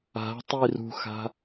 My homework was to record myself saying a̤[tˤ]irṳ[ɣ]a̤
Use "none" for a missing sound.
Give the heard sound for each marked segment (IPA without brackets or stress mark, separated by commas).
tˤ, x